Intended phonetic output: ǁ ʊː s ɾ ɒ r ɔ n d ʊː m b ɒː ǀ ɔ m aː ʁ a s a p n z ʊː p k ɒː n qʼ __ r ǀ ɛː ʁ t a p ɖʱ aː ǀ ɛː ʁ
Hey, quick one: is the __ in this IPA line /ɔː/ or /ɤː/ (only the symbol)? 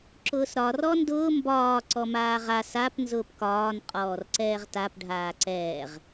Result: ɔː